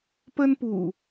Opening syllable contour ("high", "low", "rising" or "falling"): high